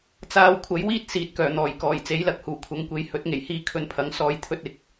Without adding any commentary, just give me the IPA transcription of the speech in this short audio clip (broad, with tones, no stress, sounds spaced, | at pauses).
t͡s aː˧ w kʷʰ ɐ˨˥ j w iː˥ t̚ s iː˨˥ t̚ k œː˨˩ n̪ ɔː˨˩ j k ɔː˨˩ j t͡s e˨˥ j l ɐ˨˥ k̚ h uː˨˩ kʷʰ ɐ˨˧ ŋ kʷ e˨˥ j h ɵ˨˥ t̚ ŋ e˨˩ j h iː˧ kʰ ɵ˧ n pʰ ɐ˨˥ ŋ s ɔː˨˧ j t̪ʰ ɵ˧ t̚ ɪ˨˥ k̚